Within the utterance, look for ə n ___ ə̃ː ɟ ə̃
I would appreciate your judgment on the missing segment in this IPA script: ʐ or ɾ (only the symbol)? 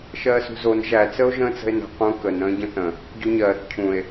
ɾ